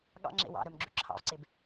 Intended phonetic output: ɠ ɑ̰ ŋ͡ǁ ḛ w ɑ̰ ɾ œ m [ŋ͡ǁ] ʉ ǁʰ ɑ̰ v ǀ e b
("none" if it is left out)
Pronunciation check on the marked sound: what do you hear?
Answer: ɡ͡ǁ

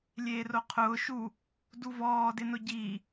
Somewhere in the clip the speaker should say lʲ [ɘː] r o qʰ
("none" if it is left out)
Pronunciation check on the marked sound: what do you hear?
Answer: eː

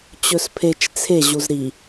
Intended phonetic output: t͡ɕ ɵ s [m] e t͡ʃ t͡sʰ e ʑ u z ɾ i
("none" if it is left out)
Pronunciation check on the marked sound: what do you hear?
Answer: pʰ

